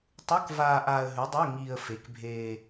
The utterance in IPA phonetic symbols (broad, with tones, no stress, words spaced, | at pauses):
tˤu˧˥˧kvaː˧ ʔaː˧ə̯ɦʉ˨˥dˤo˧˥˧ ŋiː˧ə̯fe˨˥k bʱeː˧